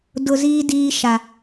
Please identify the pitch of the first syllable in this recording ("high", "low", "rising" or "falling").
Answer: low